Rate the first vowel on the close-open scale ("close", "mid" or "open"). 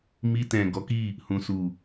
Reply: close